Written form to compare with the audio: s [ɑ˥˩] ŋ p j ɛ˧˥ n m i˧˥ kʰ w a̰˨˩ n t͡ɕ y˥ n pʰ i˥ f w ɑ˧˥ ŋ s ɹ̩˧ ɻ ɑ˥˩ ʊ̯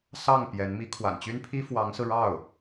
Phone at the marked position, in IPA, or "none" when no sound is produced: ɑ˥˩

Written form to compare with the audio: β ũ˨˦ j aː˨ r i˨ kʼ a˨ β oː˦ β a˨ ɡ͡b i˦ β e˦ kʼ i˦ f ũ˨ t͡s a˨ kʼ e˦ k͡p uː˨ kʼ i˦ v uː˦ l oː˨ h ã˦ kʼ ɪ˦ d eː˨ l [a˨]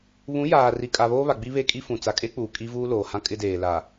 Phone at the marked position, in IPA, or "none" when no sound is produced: a˨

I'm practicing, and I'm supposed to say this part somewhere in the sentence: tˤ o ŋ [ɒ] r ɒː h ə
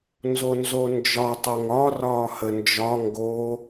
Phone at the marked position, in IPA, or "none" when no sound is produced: ɒ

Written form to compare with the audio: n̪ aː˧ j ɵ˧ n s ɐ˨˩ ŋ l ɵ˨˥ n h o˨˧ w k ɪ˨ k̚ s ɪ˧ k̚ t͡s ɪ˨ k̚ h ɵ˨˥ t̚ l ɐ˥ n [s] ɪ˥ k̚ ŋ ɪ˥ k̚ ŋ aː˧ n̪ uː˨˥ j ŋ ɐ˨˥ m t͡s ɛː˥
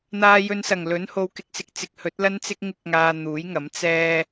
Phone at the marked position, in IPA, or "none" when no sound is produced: t͡s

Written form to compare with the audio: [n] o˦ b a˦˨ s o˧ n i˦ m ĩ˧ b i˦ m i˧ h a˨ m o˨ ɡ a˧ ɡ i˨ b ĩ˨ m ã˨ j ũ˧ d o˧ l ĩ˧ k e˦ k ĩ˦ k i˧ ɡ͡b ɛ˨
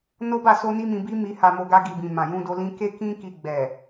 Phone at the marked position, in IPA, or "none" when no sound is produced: n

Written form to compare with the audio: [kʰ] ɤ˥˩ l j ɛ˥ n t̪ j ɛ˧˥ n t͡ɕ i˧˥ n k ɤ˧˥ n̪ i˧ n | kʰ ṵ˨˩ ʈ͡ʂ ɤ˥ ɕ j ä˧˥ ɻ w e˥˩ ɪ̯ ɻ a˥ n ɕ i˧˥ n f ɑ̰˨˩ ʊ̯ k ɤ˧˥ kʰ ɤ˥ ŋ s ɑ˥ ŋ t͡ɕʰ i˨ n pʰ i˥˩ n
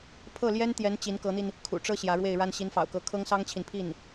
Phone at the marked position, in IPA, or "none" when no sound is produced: pʰ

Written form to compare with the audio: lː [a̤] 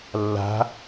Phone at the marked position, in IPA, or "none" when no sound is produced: a̤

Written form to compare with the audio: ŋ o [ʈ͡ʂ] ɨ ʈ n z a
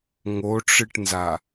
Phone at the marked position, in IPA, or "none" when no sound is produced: ʈ͡ʂ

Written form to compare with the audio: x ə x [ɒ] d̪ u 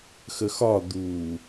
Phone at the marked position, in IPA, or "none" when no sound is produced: ɒ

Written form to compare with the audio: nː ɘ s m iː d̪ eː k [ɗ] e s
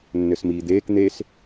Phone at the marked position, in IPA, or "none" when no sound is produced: n̪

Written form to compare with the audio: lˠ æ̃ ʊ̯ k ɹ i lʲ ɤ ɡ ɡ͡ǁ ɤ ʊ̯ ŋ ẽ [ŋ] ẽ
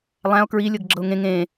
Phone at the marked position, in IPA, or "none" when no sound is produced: ŋ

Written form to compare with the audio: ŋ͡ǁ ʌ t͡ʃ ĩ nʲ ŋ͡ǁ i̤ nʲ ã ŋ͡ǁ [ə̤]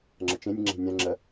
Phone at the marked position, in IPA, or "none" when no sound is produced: ə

